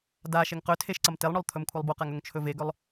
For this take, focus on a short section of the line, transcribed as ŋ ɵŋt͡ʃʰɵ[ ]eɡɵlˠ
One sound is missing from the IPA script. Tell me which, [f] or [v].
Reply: v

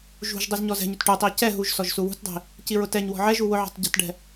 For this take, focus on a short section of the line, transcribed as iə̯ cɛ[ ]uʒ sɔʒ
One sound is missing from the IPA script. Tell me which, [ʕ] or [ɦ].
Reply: ɦ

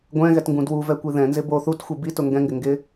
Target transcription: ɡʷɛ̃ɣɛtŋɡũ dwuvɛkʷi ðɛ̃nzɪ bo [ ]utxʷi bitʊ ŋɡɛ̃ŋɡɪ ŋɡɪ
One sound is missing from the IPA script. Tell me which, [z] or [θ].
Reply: θ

